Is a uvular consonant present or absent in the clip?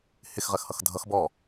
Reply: present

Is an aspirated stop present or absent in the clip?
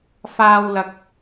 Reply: absent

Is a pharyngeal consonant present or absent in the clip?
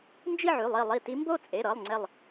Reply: present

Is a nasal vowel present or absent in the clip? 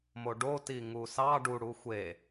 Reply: absent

